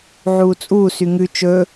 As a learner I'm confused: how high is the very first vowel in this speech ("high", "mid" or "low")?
high